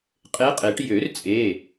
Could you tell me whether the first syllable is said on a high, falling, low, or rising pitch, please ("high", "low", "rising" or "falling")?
rising